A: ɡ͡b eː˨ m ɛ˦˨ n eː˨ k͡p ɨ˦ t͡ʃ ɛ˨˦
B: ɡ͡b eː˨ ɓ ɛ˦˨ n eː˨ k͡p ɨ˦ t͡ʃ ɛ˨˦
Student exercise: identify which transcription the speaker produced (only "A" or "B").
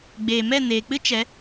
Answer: A